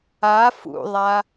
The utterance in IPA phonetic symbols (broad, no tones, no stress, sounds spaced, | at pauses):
a f ṵ ðˤ a